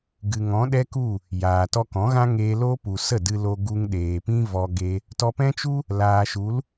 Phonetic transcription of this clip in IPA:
ɡ ɨ˨ ŋ ɔ̃˨˦ ɗ ɛ˦ k u˦˨ | j aː˨ t ɔ˧ k ɔ̃˨˦ ɣ ã˦ ŋ eː˧ l o˦ p u˨ s ə˦˨ d ɨ˧ l o˧ ɡ u˧ ŋ ɗ eː˨ p ĩ˦ v ɔ˦ ɡ e˦ | t ɔ˧ p ɛ̃˦ t͡ʃ u˦ | l aː˨ ʃ u˨˦ l

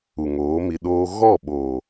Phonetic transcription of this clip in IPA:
u˨ ŋ oː˨˦ m i˧ ɗ oː˦ ɣ ɔ˦˨ ɓ oː˨

